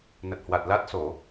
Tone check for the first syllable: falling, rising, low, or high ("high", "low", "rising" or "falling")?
low